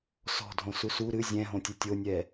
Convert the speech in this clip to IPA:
s ɔ̤ dʱ õ s u s u ɾ ɨ zʲ ɛ̃ ɦ õ tʲ ɘ tʲ o nʲ ɛ

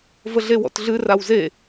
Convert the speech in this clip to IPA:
v ə ɮ e w ɔ̰ t ɮ ɨ r a w z e

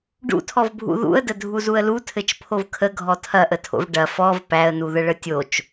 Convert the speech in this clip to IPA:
ɖ ṵ tʰ ɔ v bʱ ṵ ð ṵ ə̯ d ə dʱ u z u ə̯ l u tʰ ɘ t͡ʃ pʰ o v kʰ ə ɡʱ ɔ tʰ ɐ ʔ ə tʰ o̰ v ɖ ɐ f ɔ v p æ ə̯ n u ð ə ɭ ə tʲ o t͡ʃ

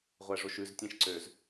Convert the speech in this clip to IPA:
ʁʷ æ ʐ o ʃ ʉ z tʲ ẽ ʃ ǀ ø z

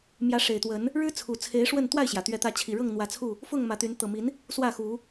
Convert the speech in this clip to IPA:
m j ä˨˦ ʂ e˨˩ ɪ̯ t̪ w ə˨˦ n | ɻ ɻ̩˦ t͡sʰ u˨˩ t͡sʰ e˨˦ ɪ̯ ʂ w ə˥˨ n t̪ w a˥˨ ɪ̯ ɕ j ä˩ t̪ ɥ ɛ˨˦ t̪ ä˨˦ t͡ɕʰ i˨˩ ɻ ɤ˥˨ ŋ n̪ w ä˨˦ t͡sʰ u˥˨ | f ʊ˥˨ ŋ m ä˨˦ t̪ y˨˦ n t̪ ɤ˨˩ m i˨˦ n | s w ä˥˨ x u˨˦

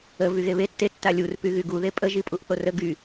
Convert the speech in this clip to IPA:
ə v y ɣ e β e tː e tː a lʲ u r p y ɣ y ɡ u ð e pʼ ə ʒ i pʼ u ʔ θ o r ə ɡ y

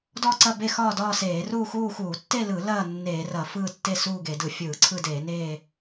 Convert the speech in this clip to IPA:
d ɔ˥˧ ǀ ɐ˥˧ b e˥˧ x ɒː˥˧ d ɒː˥˧ s eː˧˩˧ r uː˥˧ x uː˥˧ x uː˧˩˧ tː e˥˧ l ɯ˧˩˧ l ɐː˥˧ nː eː˧˩˧ r ɐ˧˩˧ f ɯː˥˧ tː e˥˧ s uː˥˧ ɡ e˧˩˧ d ɯ˧˩˧ fʲ ɯː˧˩˧ ǀʰ ɯ˥˧ d eː˧˩˧ n eː˥˧

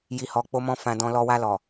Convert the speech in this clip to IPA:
j i˨ h ɔ˨ k͡p o˧ m ɔ̃˧ f ã˨ d ɔ̃˨ l ɔ˧ w a˧ l ɔ˨

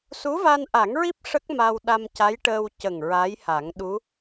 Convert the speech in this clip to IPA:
s u˧˥ v a˧ n ʔ a˨˩˦ ŋ ɹ i˦˥ p̚ ʂ ə˦˥ k̚ m a˧ w ɗ a˧ m c a˧˥ j ʈ əː˧ w c ə˨˩ ŋ ɹ a˧˥ j h a˨˩˦ ŋ ɗ u˧˥

